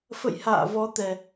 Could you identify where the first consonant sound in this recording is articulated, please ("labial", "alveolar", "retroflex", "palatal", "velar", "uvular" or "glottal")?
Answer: labial